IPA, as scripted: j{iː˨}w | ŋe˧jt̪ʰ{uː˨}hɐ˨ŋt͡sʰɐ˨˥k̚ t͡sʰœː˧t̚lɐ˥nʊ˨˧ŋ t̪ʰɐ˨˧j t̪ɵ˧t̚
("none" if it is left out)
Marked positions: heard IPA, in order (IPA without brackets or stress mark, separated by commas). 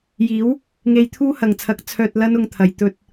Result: iː˨˥, uː˥